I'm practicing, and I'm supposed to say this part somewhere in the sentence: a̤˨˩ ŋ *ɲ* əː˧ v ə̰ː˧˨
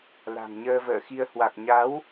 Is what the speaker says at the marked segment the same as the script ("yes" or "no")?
yes